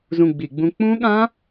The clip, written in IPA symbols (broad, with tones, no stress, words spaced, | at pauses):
zũ˦˨ɡ͡bi˧˩˧ɡ͡bũ˦˥ k͡pũ˦˥ɠã˦˥